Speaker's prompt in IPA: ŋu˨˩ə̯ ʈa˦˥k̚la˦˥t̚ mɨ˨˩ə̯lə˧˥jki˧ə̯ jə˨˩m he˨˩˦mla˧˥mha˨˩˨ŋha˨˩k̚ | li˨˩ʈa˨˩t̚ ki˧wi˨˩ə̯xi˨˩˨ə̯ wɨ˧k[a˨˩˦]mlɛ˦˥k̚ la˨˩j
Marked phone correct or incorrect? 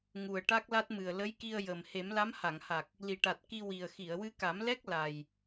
correct